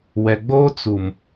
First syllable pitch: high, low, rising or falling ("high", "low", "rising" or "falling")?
low